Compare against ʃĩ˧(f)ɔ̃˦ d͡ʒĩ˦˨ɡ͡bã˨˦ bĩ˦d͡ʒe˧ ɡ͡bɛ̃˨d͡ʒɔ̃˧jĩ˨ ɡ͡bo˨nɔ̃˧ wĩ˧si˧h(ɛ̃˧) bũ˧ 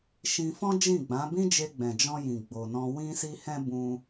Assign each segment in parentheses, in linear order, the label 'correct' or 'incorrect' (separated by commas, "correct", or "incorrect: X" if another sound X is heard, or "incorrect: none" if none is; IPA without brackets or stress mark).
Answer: correct, correct